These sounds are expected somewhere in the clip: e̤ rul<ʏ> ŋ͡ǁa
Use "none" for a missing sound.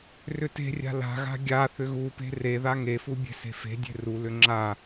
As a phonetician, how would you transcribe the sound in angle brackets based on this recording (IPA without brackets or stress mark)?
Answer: ʏ